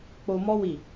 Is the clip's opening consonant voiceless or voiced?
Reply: voiceless